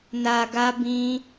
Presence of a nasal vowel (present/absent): present